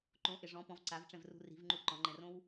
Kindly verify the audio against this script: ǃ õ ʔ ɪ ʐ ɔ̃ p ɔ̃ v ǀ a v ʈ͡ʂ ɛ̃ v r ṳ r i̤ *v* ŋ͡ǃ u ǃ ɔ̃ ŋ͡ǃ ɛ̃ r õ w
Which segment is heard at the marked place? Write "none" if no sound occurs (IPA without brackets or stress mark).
v